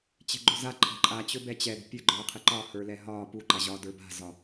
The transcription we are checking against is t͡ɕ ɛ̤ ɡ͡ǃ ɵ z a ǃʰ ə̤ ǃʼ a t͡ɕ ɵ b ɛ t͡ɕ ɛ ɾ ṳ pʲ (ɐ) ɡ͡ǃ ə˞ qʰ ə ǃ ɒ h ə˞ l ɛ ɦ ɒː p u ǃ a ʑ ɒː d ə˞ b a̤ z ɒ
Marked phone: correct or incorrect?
incorrect